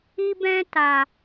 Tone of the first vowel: high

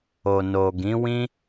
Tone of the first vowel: low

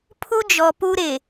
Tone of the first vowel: high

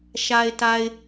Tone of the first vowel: low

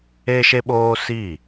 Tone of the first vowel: high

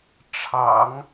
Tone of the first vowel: low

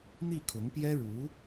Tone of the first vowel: falling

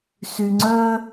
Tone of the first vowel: low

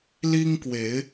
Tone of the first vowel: high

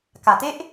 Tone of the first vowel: low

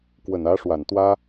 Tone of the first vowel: low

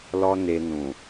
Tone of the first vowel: high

